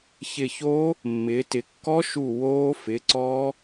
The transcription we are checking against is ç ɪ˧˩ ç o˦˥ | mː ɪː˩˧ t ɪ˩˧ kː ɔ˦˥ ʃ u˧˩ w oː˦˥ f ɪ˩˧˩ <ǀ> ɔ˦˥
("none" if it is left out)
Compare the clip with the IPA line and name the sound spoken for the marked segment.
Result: ǀ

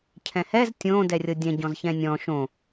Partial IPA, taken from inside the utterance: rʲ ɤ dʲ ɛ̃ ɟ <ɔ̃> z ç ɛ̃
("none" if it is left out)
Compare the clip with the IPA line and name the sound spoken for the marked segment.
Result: ɔ̃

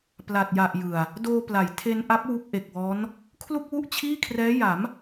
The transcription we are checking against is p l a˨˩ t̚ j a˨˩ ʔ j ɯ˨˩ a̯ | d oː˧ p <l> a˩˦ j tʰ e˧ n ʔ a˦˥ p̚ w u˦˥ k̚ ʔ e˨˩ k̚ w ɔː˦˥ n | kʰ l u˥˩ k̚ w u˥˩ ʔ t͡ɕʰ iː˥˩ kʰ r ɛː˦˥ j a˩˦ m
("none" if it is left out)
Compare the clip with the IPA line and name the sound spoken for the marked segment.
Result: l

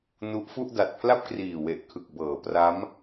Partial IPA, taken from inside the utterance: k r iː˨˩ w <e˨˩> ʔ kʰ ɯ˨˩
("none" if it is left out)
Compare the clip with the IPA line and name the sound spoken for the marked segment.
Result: e˨˩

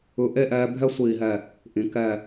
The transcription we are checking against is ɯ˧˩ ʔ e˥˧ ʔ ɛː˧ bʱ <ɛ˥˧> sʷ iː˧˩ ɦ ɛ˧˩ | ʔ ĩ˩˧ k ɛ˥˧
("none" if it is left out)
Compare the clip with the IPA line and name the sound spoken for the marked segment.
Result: ɛ˥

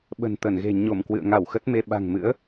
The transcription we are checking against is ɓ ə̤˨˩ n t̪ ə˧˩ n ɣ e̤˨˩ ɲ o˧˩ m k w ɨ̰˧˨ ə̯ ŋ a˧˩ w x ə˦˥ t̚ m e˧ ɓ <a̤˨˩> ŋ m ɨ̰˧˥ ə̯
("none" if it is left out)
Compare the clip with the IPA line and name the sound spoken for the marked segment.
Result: a̤˨˩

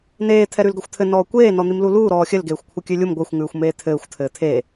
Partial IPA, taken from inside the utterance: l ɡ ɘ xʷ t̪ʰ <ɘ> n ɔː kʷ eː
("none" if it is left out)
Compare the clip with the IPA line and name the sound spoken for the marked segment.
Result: ɘ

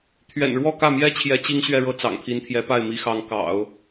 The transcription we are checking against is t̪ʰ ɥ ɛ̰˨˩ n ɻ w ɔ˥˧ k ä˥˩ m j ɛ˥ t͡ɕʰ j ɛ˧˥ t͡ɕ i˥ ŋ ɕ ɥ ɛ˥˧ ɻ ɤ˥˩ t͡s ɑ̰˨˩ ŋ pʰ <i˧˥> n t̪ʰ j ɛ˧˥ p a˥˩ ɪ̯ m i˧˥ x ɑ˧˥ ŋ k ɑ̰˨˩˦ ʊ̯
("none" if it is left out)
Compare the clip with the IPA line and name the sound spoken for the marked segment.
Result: i˧˥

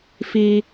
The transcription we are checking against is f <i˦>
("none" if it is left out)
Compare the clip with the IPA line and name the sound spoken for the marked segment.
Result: i˦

